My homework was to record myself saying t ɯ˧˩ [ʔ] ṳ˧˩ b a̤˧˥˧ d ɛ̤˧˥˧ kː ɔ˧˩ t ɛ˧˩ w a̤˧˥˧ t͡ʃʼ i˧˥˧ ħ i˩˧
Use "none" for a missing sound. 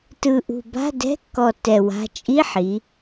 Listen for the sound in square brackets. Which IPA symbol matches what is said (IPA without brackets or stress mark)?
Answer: ʔ